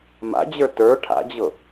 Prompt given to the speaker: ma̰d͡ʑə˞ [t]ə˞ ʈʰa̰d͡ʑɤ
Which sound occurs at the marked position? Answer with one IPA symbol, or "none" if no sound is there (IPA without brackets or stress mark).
t